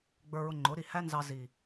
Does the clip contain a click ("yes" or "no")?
yes